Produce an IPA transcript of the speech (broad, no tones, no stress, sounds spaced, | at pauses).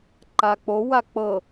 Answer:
ǃ a k͡p o w a k͡p ɤ